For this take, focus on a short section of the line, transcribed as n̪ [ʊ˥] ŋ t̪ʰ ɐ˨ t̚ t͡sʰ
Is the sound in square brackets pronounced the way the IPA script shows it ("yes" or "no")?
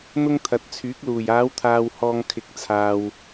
yes